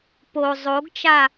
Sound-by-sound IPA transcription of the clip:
po zˤoɡt͡ʃa

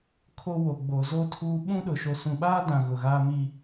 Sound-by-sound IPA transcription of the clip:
kʰo˦wo˨ ɡ͡bo˨zo˦tʰuː˦ ɓũ˦ɗʊ˨ ʃo˨sũ˨ɓaː˦dã˨ ɣʊ˨ɣaː˦mi˦

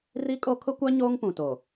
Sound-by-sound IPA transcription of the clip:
ri˦kʼo˦ kʰʊ˦kʷa˦ ɲoː˦ŋpũ˨to˨

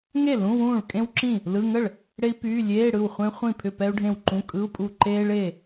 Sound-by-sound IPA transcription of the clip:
ŋe˥˩ lũ˧˥˧wũː˥˩ɭ kʼẽ˥wǁĩ˥˩ | lɯ˧˥˧ ŋə˥˩ɭ | ɽe˥i̯ pyː˧˥˧ lʲeː˧˥˧ɽɯ˥˩w χʷẽ˥ χʷĩ˥˩ pʰʏ˥˩pɛ˥u̯ɖʱẽ˥˩wǃũ˧˥˧ kʼɯ˧˥˧u̯pʼu˥˩ ǃeː˥ɭe˥˩

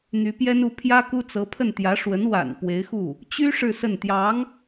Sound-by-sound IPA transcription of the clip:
n̪y˧˥pjɛ˥n u˧˥ pʰjä˥ku˥ t͡sɤ˧˥pʰə˥˩n t̪jä˧˥ ʂwə˧˥nwa̰˨˩n pwe˧˥ɪ̯xu˥˩ | t͡ɕy˥ ʂɻ̩˥˧sə˥˩n t̪jɑ˧˥ŋ

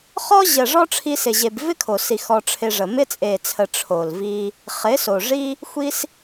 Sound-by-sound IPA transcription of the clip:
χɔ˦ ʑə˨ ʐɔ˦ʈ͡ʂʰi˧sɪ˨ʑe˨b vɪ˦kʰo˨si˨ xɔ˧ʈ͡ʂʰɪ˧ʐə˨ mɪ˧t͡sʼe˨t͡sʰə˨ ʈ͡ʂʰo˨lvi˧ | χɪ˨˦so˨ʐi˦ | xʷi˦s

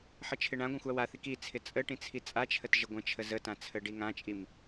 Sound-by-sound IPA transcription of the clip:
ħət͡ʃʰɪɳãɡʷãxʷ awaθik it͡sʰɪ t͡sʼəʈĩ t͡sʰit͡sʼat͡ʃʰət ʒəɡʷə̃t͡ʃʰə zətã t͡sʰəɖiŋãt͡ʃʼim

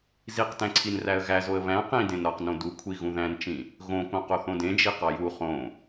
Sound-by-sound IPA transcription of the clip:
ziq tæ̃ǀʰinræə̯ɣæ zoə̯βæ̃ qĩ dẽnɾɒqnõ dukʷʰi ɣũðæ̃nt͡ʃĩ | ɣõkõ qoθõdẽd͡ʒi qɒju χõ

